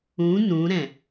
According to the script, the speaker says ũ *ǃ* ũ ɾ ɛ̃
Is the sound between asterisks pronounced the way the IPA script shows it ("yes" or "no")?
no